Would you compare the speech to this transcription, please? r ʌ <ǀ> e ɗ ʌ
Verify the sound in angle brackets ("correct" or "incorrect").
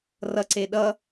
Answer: correct